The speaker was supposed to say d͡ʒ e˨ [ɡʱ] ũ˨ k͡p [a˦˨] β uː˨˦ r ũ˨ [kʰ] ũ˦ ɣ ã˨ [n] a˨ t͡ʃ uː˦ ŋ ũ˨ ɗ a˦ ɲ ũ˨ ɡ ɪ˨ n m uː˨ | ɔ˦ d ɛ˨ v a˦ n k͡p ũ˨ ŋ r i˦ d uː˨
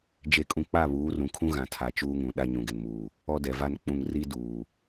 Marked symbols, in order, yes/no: no, yes, yes, no

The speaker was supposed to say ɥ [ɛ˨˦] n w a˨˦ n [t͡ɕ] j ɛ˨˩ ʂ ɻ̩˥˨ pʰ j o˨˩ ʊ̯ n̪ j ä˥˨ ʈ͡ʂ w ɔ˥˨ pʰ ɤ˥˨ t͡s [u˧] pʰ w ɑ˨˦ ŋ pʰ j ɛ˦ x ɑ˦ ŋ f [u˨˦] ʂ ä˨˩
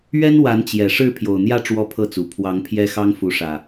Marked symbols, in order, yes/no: no, yes, no, yes

